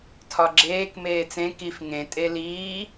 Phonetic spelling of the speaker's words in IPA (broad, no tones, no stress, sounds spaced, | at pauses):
tʰ ɒ ɡ͡ǁ eː k m eː t͡s ẽ k i f ŋ ẽ tʼ e l iː